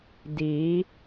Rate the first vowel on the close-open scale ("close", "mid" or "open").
close